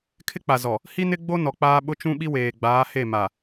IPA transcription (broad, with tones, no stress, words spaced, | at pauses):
kʰɪ˦k͡pa˨zɔ˨ | hi˦ nɪ˦ɡ͡bo˦ nɔ˨k͡paː˦ ɓʊ˦t͡ʃũ˦ ɓi˦weː˨ɡ͡baː˨˦ he˦˨ ma˨